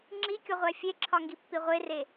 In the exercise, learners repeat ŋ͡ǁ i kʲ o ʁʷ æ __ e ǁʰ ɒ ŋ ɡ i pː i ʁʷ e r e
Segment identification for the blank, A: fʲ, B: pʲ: A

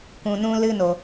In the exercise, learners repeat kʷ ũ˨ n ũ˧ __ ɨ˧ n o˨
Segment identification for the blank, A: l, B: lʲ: A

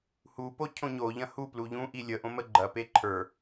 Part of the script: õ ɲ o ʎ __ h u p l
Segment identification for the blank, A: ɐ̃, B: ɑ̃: A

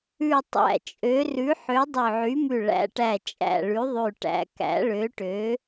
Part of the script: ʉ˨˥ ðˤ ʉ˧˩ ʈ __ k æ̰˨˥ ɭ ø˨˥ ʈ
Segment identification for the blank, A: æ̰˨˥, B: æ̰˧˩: A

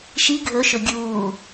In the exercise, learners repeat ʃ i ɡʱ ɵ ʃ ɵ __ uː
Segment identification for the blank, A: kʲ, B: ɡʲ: B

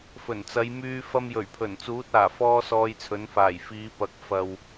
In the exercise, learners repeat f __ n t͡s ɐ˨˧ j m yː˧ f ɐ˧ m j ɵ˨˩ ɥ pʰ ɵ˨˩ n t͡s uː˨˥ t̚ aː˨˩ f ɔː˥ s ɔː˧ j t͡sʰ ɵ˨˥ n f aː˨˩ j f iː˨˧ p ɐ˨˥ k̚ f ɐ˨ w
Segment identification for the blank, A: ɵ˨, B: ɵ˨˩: B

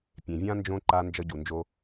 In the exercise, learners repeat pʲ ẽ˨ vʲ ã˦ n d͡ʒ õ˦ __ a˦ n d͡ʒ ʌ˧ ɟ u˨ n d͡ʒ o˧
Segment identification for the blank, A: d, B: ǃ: B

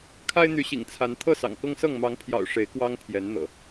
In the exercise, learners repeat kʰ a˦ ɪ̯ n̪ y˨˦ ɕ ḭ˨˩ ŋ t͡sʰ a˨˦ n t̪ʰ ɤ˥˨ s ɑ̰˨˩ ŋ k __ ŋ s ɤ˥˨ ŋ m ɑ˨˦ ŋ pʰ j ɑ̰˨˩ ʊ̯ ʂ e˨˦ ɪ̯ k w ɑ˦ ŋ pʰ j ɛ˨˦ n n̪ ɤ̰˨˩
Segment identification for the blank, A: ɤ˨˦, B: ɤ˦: B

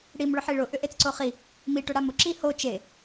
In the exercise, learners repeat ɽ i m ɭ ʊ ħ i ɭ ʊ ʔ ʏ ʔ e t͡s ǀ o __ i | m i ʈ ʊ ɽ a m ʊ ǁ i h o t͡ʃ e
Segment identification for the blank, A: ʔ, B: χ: B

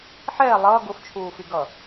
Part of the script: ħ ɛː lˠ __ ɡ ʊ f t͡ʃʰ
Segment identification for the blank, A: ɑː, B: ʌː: B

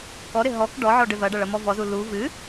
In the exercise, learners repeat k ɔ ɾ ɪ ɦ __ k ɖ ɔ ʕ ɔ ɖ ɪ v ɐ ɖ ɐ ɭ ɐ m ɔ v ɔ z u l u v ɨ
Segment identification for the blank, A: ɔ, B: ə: A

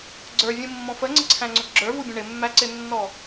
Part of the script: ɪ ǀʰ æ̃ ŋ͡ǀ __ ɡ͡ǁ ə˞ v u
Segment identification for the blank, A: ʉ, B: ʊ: B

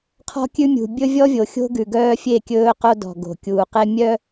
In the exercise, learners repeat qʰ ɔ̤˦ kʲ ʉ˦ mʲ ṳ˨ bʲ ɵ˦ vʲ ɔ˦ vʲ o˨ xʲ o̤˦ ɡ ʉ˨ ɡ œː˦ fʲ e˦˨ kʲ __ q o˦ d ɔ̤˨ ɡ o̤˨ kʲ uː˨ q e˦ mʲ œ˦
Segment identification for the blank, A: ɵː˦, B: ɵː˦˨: A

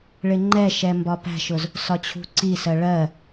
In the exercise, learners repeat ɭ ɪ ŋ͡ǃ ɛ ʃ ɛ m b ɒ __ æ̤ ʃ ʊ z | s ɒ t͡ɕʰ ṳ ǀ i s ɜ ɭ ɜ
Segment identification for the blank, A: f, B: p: B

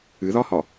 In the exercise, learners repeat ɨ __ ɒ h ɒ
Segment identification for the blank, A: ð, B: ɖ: A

